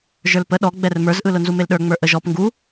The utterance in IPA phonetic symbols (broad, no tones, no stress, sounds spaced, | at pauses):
ʒ ə˞ l p ə ɗ ɔ ɡ͡b ɛ r m ə˞ z ʔ ɯ l ʊ n z u m e l ɗ ə˞ ŋ͡m ə˞ ʔ ə ʒ ɔ p ŋ ɡ u